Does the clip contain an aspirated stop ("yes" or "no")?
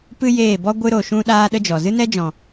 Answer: no